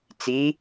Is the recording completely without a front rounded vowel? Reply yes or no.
yes